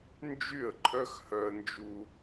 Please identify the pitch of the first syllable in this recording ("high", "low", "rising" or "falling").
falling